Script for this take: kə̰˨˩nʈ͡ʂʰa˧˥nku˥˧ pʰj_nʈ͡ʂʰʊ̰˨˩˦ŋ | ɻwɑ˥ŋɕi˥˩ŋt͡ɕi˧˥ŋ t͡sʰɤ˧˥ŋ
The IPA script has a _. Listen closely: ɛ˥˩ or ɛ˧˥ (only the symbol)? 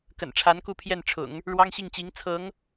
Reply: ɛ˥˩